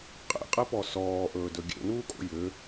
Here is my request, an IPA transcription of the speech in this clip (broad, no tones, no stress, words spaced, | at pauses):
qʼḛqʼepɔ sɔːʔɵːdɵ ɡʲḛnuːkʼo̰ jʏ